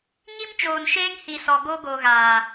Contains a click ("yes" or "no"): no